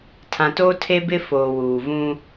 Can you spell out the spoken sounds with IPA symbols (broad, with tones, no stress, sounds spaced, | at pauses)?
tʰ ã˨ t oː˦ tʰ e˦ b ɪ˦ f oː˨ w uː˨ v ũ˦